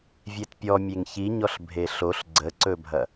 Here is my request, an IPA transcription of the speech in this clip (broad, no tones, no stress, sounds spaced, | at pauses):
vʲ e t pʲ ɔ mʲ e ŋ ç i ɲ ɔ ɬ bʱ e ɬ o ɬ ɡ͡ǀ ə ǀ ɵ bʱ ɐ